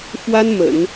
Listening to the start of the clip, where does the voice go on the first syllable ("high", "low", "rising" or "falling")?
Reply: high